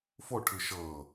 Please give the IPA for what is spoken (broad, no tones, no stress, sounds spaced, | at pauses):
f o ʈʰ ɯ ʃ ɤ